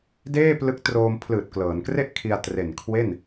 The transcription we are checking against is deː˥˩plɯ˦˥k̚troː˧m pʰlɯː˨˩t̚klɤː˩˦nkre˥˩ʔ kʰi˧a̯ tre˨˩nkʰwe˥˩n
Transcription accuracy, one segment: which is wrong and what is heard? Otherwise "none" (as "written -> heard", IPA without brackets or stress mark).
none